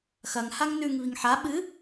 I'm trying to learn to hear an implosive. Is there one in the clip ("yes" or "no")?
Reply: yes